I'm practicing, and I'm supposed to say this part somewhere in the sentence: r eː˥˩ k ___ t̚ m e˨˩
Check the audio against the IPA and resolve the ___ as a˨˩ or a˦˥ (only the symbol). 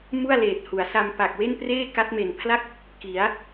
a˦˥